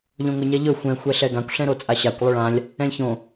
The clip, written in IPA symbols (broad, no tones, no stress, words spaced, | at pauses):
ʎõŋʊɲɛʎɵ xʷɛ̃ xʷɛɬɛɡãkʷ ɬɛ̃ɾot͡sʼaɕakʷ lˠʊɭãlʲ | ɛ̃lʲçõ